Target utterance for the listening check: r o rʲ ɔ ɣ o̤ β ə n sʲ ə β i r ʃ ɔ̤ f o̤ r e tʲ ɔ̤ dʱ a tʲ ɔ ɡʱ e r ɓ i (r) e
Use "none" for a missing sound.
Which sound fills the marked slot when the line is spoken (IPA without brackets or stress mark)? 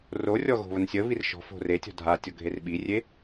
rʲ